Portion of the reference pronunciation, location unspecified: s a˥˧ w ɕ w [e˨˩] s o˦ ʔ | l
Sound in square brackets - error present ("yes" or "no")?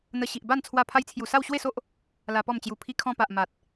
yes